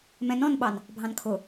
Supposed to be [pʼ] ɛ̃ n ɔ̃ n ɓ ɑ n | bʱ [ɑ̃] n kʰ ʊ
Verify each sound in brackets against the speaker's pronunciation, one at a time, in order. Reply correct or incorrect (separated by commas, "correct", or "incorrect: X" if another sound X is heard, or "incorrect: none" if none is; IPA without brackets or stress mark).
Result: incorrect: m, correct